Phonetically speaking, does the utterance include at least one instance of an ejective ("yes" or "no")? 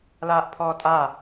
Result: yes